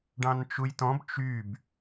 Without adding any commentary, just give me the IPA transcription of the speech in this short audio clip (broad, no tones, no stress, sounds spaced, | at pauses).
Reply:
ɖ ɑ̃ n t͡ʃ u j t ɔ̃ b t͡ʃ y b